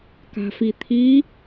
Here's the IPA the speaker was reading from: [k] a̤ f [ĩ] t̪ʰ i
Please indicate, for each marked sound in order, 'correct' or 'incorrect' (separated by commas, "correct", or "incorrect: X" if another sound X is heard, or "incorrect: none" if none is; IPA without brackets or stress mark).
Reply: correct, incorrect: i